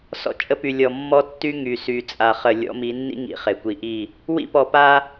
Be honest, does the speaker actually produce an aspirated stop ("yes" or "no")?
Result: no